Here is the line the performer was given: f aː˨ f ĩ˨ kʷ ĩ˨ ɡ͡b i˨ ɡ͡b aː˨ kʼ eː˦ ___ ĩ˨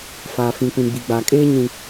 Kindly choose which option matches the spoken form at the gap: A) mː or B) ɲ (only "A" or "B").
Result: B